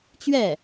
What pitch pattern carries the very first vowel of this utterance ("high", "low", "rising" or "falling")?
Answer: falling